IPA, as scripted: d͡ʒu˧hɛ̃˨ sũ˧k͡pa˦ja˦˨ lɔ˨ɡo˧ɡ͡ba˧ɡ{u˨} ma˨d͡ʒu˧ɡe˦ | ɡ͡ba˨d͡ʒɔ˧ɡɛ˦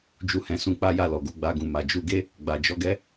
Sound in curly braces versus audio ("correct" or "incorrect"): incorrect